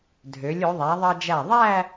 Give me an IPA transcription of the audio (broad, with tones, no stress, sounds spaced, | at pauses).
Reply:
dʱ ø˩˧ lʲ o˩˧ ðˤ æ˩˧ ðˤ ɑ˧ d͡ʒ æ˧˩ ðˤ æ˥˧